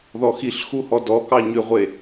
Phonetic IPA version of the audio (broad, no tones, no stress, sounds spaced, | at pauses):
ð ɔ x i ɬ x u h ɔ d ɔ k ɑ ɲ ʏ ʁʷ e